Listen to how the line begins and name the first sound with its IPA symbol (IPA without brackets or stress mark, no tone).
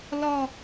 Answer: l